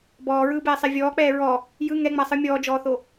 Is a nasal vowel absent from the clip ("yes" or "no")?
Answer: yes